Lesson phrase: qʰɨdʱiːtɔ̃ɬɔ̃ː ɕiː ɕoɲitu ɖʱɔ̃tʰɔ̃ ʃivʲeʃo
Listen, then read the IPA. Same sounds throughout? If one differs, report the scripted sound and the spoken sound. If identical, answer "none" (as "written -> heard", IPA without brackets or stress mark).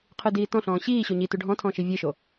dʱ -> d